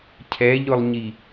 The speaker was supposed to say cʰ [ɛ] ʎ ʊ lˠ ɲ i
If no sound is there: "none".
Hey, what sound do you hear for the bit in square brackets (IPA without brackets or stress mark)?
ɛ